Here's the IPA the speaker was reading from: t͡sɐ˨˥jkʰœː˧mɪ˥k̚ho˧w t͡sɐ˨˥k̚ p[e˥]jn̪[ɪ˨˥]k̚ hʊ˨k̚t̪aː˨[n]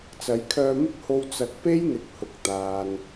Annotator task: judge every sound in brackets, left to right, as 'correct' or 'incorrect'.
correct, incorrect, correct

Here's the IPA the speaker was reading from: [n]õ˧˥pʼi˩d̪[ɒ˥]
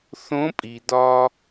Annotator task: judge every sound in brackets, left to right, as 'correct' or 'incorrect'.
incorrect, incorrect

